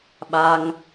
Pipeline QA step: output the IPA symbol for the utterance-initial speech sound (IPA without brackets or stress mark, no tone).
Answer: ɓ